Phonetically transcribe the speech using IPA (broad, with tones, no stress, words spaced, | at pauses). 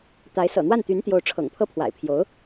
t̪a˧˥ɪ̯ sɤ̰˨˩n̪wa˥˩nt̪y˧˥nt̪jo˧˥ʊ̯ ʈ͡ʂʰɤ̰˨˩ŋpʰɤ˥˩ pʰwa̰˨˩ɪ̯pʰjo˧˥ʊ̯